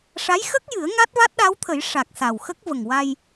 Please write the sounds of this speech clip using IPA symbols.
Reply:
ʂ a˧˥ j x ə˦˥ k̚ j ɨ˨˩˦ ə̯ ŋ a˦˥ t̚ v a˦˥ t̚ ɗ a˧˥ w t̪ʰ ə˨˩˦ j ʂ a˨˩ k̚ s a˨˩ w x ə˦˥ k̚ v ə˨˩ ŋ w a˧ j

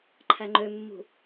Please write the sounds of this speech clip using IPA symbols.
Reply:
ǃʰ æ ŋ͡ǃ ø mː ṳ

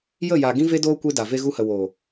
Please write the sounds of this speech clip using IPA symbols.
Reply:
j ə˦˨ j a˨ ɡ ĩ˦ v e˦ d oː˦ kʷ e˦ d a˨ v e˧ ɣ u˧ h ə˨ w oː˨

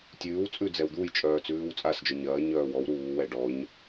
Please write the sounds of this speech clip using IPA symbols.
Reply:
tʲ ʉː w t͡sʼ ʉ d͡z ɛ w d̪ u j t͡ʃʼ œː t͡s ʉː w t͡sʼ a s d͡ʒ œ ɲ ɐː ɲ œː w ɔ w ɾ uː w ɛ ɖ ɔ ɲ

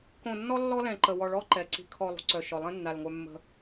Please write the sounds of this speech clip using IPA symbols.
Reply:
k õ˨ nː ɔ˦ lː ɔ˦ l ɛ̃˨ ǃ ə˨ w ɔ˨ ɭ ɔ˦ ǃ ɛ˨ ǀ i̤˨ kʰ ɔ˨ lˠ ṳ˨ ǀ œ˨ ʃ ɔ˨ lˠ ɛ̃˦ nː a˨ l ŋʷ œ˦ mː ə̤˦

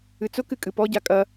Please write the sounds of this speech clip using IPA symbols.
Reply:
ɨ t͡s ʊ k ɨ kʼ ɨ p ɔ ɟ a kʼ ɐ

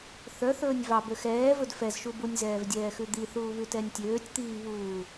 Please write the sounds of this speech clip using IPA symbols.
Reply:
θ œ θ ɵː nʲ v ɑ b ø x ɛː v ɵ d f ɛ z ʃ u b u nʲ z ɛː v dʲ ɛː x ʉ d̪ i θ uː β ʉ t ɛ nʲ tʲ øː tʲ t̪ iː β uː

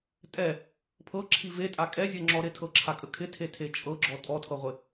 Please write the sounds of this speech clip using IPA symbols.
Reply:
tʼ ɛ | pʰ ɤ ǁʰ i v e tʼ a kʼ ɛ zʲ ɤ ŋ͡ǁ ɔ ɾ ɪ tʰ ɤ ǁʰ a kʼ ə kʰ ɪ tʰ e tʰ e t͡ʃʼ ɤ ɡ͡ǁ ɔ tʼ ɔ tʰ ɤ ʁʷ ɪ

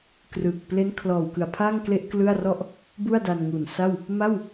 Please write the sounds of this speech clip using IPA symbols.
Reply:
k r ɯ˨˩ k̚ p l e˦˥ n kʰ l ɔː˨˩ w k ɯ˨˩ a̯ pʰ a˥˩ ŋ k l e˥˩ ʔ k l ɯ˥˩ a̯ r ɔ˥˩ ʔ | b u˥˩ a̯ d a˧ n ŋ u˨˩ n s a˥˩ w | m a˥˩ w

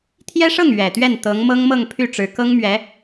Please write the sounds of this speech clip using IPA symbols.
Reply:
t̪ʰ j ɛ˥ ʂ ɤ˥˩ ŋ ɥ ɛ˨˩ t̪ ɥ ɛ˥˩ n t̪ ɤ˧˥ ŋ m ɤ˥ ŋ m ɤ˥˧ ŋ pʰ y˥˩ ʈ͡ʂ ɻ̩˧˥ k ɤ˥ ŋ m ɥ ɛ˧˥

